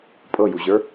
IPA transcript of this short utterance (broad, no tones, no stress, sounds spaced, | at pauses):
pʼ ɤ j u ʑ ə˞